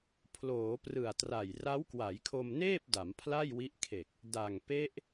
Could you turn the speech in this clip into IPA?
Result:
pʰ l oː˩˦ p r ɯ˨˩ a̯ t r a˨˩ j r a˦˥ w k w a˩˦ j kʰ o˧ m n eː˥˩ p̚ d a˩˦ m pʰ l a˥˩ j w i˦˥ ʔ kʰ e˨˩ k̚ | d a˨˩ ŋ p e˦˥ ʔ

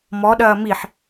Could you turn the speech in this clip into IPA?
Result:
m ɔ ɗ ɐː m i ħ

